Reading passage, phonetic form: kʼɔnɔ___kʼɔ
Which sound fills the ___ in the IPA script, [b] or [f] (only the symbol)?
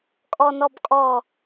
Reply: b